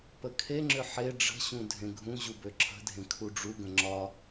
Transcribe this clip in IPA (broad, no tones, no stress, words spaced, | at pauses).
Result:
pəkʰeŋ͡ǁʏ ħe ɖ͡ʐə̤ɕũ dʱẽɡʱũʑu bøǁʰə̤dʱẽ kʰuɖ͡ʐuɡə̃ ŋ͡ǁɒ